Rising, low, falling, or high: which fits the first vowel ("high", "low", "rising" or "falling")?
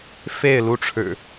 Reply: falling